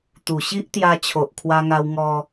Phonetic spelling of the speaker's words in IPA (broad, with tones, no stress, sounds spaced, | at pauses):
t̪ u˨˩ ɕ i˦ ʔ t̪ j a˧ t͡ɕʰ o˨ ʔ kʰ w a˧ ŋ a˧ w ŋ ɔ˧